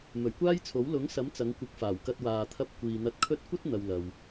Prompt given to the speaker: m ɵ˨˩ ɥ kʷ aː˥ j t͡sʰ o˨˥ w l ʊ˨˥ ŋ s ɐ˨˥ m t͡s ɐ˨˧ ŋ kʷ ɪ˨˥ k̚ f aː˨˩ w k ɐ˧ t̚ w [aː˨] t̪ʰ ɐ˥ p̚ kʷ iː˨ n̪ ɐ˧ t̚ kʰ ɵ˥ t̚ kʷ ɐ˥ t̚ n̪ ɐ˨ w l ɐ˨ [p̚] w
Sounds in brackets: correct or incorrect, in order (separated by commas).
correct, incorrect